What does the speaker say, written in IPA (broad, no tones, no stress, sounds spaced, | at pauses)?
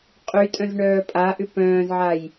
qʼ y tʼ œ̃ z ɳ œː pʼ a ʔ ʏ p œ̃ː z ʕ a j